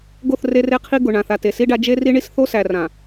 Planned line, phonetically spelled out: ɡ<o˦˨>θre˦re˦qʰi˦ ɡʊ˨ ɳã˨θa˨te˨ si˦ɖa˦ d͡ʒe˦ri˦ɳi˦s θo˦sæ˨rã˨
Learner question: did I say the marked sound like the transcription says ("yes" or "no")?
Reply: yes